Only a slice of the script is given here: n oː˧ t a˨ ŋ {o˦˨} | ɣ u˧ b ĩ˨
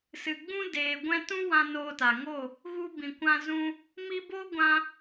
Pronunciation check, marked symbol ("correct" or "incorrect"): correct